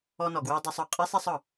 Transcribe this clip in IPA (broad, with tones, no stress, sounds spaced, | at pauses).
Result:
ɔ˧ n ɔ˩ ɡ w ɵ˧ w dˤ u˧ sˤ ɔ˩ qʼ e˥ sˤ ɛ˧ sˤ ɒ˩